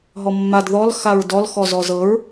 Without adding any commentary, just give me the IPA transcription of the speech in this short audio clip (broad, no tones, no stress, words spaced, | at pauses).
ɦɔmːad ðɔl xaɹdɔl xɔzɔzɤɹ